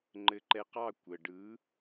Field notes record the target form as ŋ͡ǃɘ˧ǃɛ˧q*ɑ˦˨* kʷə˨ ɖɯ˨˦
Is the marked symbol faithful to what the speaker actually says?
yes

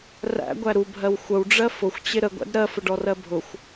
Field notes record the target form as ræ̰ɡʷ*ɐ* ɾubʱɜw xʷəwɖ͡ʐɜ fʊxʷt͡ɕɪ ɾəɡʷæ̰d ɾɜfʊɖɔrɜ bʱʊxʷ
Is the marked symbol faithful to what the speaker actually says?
no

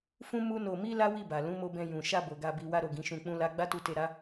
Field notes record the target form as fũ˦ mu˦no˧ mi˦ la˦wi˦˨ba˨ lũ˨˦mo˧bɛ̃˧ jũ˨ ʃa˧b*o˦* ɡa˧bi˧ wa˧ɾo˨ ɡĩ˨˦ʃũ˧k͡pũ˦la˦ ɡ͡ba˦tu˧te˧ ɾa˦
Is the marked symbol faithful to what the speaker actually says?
no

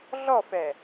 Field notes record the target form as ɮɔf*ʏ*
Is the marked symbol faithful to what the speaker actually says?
no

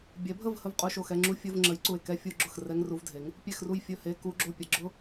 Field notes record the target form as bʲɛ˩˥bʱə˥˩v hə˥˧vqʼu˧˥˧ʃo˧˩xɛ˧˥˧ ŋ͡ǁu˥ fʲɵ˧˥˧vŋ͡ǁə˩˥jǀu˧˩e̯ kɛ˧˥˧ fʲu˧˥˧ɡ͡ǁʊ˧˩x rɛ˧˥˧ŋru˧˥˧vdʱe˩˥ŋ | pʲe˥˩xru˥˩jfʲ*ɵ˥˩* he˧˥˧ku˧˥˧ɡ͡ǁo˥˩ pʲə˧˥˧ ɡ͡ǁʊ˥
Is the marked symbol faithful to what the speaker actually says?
yes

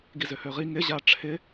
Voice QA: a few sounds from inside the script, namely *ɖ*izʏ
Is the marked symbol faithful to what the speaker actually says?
no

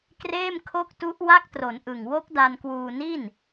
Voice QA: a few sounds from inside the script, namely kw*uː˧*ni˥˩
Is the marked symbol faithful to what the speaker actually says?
yes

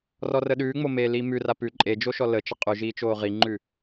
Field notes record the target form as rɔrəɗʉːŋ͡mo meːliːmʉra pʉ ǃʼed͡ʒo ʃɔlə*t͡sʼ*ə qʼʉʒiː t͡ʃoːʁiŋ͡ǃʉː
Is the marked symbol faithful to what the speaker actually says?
no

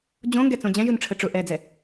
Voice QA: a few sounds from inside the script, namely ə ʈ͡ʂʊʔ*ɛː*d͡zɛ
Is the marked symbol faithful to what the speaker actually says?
yes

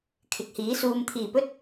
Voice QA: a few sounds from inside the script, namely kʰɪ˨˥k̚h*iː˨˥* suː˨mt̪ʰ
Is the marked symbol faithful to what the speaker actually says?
yes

